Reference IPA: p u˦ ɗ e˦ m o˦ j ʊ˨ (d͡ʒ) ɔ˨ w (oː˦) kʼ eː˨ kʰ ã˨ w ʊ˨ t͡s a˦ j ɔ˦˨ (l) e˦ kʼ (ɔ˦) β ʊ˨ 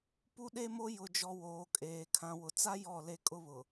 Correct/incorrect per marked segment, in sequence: correct, incorrect: oː˨, correct, incorrect: ʊ˦

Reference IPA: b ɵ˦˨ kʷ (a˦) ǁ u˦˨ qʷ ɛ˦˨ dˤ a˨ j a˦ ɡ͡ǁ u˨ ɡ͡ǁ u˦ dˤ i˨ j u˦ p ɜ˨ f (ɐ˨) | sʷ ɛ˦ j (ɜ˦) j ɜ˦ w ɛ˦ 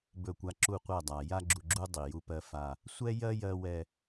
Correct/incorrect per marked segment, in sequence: correct, incorrect: a˨, correct

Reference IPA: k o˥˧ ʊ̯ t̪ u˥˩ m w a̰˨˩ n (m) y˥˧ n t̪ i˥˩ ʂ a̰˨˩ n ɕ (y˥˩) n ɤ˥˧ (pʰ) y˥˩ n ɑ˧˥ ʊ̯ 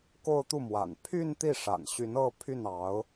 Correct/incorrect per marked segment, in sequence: incorrect: pʰ, incorrect: y˧˥, correct

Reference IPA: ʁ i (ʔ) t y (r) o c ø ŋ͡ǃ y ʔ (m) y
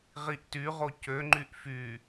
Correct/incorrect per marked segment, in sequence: correct, incorrect: ʁ, incorrect: f

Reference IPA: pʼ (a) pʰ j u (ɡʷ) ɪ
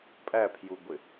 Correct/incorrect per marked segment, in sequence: incorrect: æ, correct

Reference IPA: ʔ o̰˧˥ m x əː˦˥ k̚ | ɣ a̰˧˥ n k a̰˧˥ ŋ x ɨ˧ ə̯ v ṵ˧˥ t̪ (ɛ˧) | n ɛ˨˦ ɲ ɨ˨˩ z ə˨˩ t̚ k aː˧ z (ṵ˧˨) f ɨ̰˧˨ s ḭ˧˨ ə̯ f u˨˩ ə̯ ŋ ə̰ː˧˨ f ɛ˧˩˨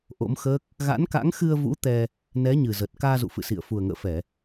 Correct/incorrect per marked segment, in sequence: correct, correct

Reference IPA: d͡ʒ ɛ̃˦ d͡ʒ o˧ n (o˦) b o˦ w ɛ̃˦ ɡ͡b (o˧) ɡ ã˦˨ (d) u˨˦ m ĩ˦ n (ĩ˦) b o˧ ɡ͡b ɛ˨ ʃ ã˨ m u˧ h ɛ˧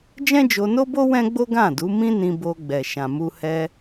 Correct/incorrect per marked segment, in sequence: correct, incorrect: o˦, correct, incorrect: ĩ˧

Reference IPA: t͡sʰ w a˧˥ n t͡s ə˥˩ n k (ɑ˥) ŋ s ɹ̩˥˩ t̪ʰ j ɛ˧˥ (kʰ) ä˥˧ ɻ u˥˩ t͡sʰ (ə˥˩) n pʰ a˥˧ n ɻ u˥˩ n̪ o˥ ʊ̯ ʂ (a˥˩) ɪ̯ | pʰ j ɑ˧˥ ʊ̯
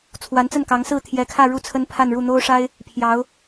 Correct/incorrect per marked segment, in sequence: incorrect: ɑ˧˥, correct, incorrect: ə˥, incorrect: a˥

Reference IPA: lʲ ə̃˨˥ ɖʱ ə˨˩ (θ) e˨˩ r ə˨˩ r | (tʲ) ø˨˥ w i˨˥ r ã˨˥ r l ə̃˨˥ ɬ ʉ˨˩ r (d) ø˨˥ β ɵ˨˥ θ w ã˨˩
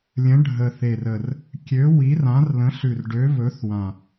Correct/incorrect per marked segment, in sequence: correct, incorrect: kʲ, incorrect: ɖ

